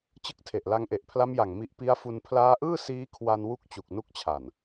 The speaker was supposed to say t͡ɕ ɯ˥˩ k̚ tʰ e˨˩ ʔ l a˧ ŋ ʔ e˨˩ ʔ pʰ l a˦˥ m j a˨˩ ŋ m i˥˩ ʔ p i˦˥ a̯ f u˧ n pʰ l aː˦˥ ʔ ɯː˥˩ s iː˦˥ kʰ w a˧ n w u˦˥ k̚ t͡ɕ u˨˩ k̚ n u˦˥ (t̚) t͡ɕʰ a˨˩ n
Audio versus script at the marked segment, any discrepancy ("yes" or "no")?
yes